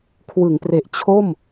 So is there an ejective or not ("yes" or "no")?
no